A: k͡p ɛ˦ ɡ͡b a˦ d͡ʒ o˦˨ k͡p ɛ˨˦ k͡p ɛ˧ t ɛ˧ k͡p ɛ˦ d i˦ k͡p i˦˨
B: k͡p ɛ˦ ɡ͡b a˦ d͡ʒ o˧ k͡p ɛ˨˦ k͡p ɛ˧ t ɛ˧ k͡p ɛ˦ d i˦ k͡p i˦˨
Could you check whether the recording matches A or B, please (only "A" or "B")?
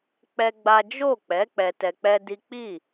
A